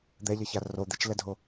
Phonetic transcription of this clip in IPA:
d̪ ɛ ʎ ʌ ç a r o d̪ e t͡ʃ l ɛ dʱ o

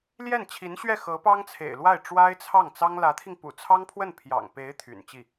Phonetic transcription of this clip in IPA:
l j ɛ˥˩ n t͡ɕʰ i˧˥ n ɕ ɥ ɛ˥˩ x ɤ˧˥ p ɑ˥ ŋ t͡sʰ ḛ˨˩ ɪ̯ l w a˥˩ ɪ̯ ʈ͡ʂ w a˥ ɪ̯ t͡sʰ ɑ˥˩ ŋ t͡s ɑ˥ ŋ l ä˧˥ t̪ʰ i˧ ŋ p ṵ˨˩ t͡sʰ ɑ˥ ŋ pʰ w ə˥˩ n pʰ j ɑ̰˨˩ ŋ p e˧˥ ɪ̯ t̪ʰ y̰˨˩ n t͡ɕ i˥˩

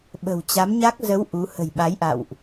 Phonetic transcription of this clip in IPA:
ɓ ə̤˨˩ w t͡ɕ a˨˦ m ɲ a˦˥ k̚ z ə˨˦ w ʔ u˨˦ h ə̤˨˩ j ɓ a˨˦ j ʔ a̰˧˨ w ʔ

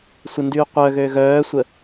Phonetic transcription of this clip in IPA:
sʷ ə n d yː qʷ œ ɣ øː ɣ œː sʷ ə

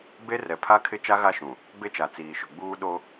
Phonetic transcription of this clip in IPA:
b e˦ r ɛ˨ pʰ a˦ kʰ ɪ˦ t͡ʃ a˦ ɣ a˦˨ ʃ ũ˨ | b e˦ t͡ʃ a˨ t͡s iː˨ ʃ ʊ˨ ɡ͡b uː˦ ɗ o˦

